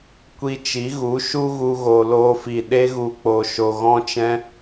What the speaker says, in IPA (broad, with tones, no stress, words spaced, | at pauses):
kʷi˧t͡ʃi˨˦ɣu˨˦ ʃu˦ ɣu˧ɣo˨loː˧fi˨ ɗe˧ɣu˨k͡po˨ ʃo˨ɣɔ̃˧t͡ʃɛ̃˧